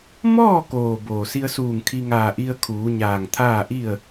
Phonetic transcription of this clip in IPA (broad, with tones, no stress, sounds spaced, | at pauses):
m ɔː˥˨ k oː˧˩ b oː˩ s i˧ ə̯ s uː˧˩ ŋ kʰ i˧ ŋ aː˧˩ ʔ i˧ ə̯ kʰ uː˩˧ ɲ aː˧˩ ŋ t̪ʰ aː˥˨ ʔ i˥˨ ə̯